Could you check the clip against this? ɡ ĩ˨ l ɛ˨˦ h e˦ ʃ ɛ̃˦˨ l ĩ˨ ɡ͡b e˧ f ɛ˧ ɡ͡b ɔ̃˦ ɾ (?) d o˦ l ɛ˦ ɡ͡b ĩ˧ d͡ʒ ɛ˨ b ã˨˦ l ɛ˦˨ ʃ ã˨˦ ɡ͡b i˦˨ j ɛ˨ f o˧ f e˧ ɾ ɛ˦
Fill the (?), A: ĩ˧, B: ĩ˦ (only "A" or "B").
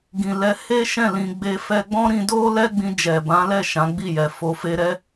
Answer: A